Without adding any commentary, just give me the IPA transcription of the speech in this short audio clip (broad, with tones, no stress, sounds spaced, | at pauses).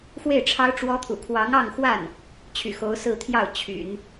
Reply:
x w e˥˩ ɪ̯ ʈ͡ʂʰ ɑ˥ ʊ̯ ʈ͡ʂ w ɔ˥ t̪ʰ ṵ˨˩ kʰ w ɑ˧˥ ŋ ɑ˥˧ ŋ x w a˥˩ n | t͡ɕʰ y̰˨˩ x o˧˥ ʊ̯ s ɹ̩˥˧ t̪ʰ j ɑ˥˩ ʊ̯ t͡ɕʰ y̰˨˩˦ n